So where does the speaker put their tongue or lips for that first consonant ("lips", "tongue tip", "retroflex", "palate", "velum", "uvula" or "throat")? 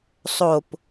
tongue tip